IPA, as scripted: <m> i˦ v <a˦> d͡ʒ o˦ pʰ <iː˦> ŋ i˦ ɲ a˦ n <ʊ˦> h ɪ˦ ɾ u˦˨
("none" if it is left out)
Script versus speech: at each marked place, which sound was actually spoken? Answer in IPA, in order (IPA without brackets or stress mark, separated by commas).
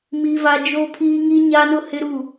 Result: m, a˦, iː˦, ʊ˦